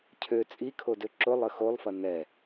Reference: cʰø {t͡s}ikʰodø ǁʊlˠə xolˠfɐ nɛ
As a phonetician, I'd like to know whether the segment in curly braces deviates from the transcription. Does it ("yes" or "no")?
yes